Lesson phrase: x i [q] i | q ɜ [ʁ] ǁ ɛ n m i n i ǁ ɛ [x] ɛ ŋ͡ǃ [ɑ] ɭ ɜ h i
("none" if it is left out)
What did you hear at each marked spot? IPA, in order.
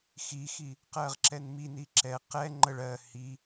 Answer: x, ʁ, q, ə

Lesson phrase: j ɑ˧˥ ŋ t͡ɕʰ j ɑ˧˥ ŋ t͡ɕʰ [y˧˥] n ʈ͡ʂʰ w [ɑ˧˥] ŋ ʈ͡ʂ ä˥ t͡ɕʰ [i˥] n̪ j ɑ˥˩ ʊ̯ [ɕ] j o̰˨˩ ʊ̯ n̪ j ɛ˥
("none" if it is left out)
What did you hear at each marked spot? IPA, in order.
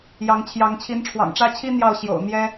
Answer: i˧˥, ɑ̰˨˩, i˥, ɕ

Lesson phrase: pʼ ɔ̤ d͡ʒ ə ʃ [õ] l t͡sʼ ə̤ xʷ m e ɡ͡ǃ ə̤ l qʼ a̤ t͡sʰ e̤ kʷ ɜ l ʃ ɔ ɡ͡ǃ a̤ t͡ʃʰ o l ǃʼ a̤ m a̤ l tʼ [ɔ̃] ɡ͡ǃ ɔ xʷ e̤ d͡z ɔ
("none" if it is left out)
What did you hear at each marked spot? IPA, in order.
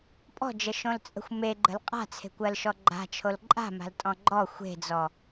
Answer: õ, ɔ̃

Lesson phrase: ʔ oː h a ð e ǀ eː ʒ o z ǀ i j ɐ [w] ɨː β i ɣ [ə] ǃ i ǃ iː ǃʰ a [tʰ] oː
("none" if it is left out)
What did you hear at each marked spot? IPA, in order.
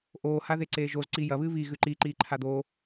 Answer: β, ʉ, d̪

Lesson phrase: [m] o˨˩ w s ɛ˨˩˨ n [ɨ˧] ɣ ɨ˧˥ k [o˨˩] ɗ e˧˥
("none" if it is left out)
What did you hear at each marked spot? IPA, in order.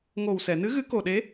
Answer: ŋ, ɨ˧˥, o˨˩

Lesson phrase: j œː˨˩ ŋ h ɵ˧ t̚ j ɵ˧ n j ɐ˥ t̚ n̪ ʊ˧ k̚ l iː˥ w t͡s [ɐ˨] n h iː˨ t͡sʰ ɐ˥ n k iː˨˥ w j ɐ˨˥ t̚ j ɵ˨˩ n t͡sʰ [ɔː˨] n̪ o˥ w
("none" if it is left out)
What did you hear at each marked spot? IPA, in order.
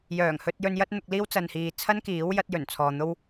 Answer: ɐ˨, ɔː˨

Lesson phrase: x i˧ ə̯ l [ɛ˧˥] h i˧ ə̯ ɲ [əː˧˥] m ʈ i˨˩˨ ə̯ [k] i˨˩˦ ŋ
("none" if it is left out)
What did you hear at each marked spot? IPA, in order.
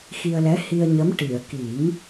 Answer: ɛ˧˥, ə˧˥, k

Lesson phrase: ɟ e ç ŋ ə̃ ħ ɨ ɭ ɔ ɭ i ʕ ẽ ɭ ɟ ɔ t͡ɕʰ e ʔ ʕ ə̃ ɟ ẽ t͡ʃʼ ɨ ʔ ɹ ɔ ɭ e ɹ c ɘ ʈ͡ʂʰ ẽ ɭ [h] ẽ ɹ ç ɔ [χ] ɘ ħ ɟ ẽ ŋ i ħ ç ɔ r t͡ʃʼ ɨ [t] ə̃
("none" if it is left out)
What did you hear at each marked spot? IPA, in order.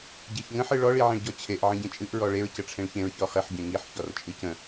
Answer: ç, χ, c

